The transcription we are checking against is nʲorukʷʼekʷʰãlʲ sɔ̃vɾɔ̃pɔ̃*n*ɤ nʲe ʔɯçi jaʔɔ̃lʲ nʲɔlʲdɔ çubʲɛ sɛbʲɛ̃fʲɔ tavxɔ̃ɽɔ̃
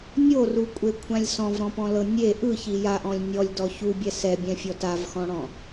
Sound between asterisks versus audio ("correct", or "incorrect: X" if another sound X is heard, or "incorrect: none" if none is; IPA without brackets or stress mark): incorrect: l